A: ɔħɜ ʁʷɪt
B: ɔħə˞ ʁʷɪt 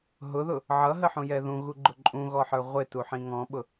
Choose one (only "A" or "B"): B